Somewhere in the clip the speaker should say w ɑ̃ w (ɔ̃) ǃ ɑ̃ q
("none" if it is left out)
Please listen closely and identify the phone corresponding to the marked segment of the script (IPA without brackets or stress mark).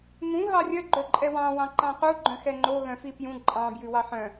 ɑ̃